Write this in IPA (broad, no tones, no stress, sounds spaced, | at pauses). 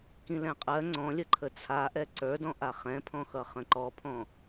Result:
k ĩ l ɛ̃ qʼ ɜ ŋ͡ǀ ɔ̃ lʲ ə ǃʰ ə t͡sʰ a ʔ ɛ ǀ ə˞ d ɔ̃ ʔ a χ ɛ̃ pʰ ɔ̃ x ʌ χ ə̃ ǃ ɔ pʰ ɔ̃